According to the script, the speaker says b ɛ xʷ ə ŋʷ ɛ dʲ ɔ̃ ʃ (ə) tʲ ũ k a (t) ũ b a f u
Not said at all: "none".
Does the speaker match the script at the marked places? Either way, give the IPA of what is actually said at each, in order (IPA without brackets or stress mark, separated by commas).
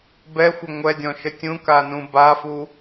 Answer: ə, n